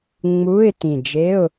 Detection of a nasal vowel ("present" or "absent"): present